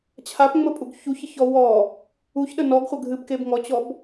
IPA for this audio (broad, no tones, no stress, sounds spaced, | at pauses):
t͡ɕʰ a p ŋ͡m ə pʼ u ɡ ç u ç ə ç ɔ w ɔ | u ç ɗ ə n ɔ ɡ χʷ ə ɡʱ ɨ b k e b ŋ ɔ t͡ɕ ɔ b